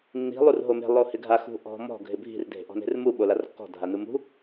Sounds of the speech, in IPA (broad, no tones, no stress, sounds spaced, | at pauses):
nː i̤ lˠ u r ɦ o m e̤ lˠ o h ɪ ɡʱ a x ṳ ʔ ɔ̤ m ɔ̤ ɡʱ ɪ bʱ i̤ r dʱ e̤ ʔ ɔ̤ n e̤ r m u ɓ o l a r kː ɔ̤ dʱ a n u m ṳ